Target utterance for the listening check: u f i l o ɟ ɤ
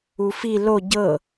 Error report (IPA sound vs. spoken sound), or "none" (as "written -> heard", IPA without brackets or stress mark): none